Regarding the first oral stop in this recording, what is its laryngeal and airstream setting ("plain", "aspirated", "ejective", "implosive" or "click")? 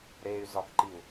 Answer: plain